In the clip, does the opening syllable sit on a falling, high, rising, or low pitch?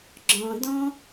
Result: low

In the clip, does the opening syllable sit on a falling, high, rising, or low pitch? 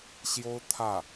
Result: high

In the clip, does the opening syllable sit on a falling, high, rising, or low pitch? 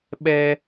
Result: high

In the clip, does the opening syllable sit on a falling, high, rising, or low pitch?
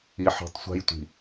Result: rising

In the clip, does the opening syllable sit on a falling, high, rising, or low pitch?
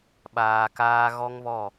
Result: low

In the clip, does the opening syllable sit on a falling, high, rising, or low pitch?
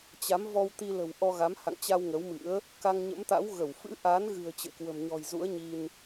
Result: rising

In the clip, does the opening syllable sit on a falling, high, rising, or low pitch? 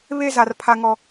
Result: high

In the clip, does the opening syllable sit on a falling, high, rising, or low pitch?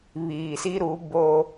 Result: low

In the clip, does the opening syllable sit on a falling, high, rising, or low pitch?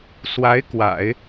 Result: rising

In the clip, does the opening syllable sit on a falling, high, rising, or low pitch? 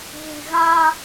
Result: low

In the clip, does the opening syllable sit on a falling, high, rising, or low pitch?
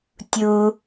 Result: high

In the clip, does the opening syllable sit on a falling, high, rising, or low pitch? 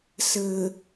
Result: low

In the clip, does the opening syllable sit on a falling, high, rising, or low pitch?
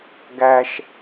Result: low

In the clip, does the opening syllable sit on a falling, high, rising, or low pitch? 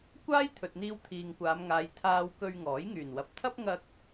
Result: high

